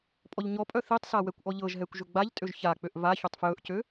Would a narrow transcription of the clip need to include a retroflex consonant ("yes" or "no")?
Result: no